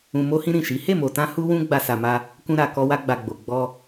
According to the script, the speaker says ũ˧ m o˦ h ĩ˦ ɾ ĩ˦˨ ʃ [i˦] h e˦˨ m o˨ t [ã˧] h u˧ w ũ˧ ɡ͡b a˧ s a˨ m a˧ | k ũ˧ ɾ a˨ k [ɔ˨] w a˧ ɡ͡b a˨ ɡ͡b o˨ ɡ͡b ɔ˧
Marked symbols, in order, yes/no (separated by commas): no, yes, no